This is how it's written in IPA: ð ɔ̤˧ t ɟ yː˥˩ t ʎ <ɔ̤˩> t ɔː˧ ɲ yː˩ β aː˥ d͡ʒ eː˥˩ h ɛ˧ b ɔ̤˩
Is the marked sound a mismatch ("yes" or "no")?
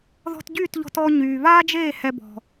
yes